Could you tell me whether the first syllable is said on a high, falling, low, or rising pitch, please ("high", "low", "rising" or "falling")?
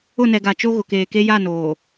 falling